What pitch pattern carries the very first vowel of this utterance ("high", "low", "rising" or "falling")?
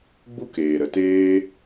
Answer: high